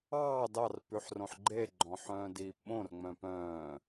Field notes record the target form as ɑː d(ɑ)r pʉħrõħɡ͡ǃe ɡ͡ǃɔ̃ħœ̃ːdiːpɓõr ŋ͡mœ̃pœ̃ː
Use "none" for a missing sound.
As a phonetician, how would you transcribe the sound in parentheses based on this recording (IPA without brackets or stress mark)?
ɑ